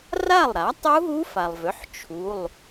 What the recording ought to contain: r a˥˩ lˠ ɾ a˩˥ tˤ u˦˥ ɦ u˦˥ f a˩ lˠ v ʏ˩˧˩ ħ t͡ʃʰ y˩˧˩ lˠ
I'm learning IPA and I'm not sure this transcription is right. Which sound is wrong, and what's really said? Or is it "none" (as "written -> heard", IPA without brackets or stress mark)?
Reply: y˩˧˩ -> u˩˧˩